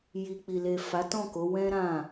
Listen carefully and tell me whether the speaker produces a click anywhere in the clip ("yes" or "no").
no